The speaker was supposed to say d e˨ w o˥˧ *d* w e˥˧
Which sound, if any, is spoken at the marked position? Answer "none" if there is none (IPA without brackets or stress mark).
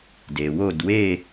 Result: d